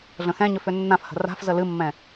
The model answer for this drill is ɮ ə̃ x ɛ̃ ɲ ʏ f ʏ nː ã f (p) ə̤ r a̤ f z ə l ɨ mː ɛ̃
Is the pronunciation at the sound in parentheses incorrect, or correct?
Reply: incorrect: h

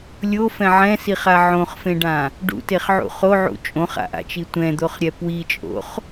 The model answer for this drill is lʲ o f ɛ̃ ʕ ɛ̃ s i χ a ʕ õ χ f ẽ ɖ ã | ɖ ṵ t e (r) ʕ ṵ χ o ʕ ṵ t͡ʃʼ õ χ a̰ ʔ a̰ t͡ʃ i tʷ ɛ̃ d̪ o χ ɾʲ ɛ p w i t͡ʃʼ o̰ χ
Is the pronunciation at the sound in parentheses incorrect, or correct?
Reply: incorrect: χ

